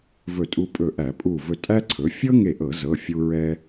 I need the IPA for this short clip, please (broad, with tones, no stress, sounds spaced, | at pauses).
v ɵ˧˩ tʼ u˧ pʼ ɵ˧˩ ʔ æ˧˩˧ pʼ u˧˩ v ɵ˧˩ tʼ æ˥ ǀʰ ɵ˩˥ fʲ ɤ˥ ŋ e˧˩ ʔ ɤ˧˩˧ z ɤ˩˧˩ fʲ u˧ ɹ ɛ˧